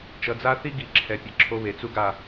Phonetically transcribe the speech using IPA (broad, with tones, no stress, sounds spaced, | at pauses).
t͡ʃ ʌ˨ d͡z a˦ θ i˦ ɡ i˨ ǁʰ ɛ˨ pʲ ʌ˨ ǁʰ o˦ β e˨ t͡s u˦ ɡ a˦˨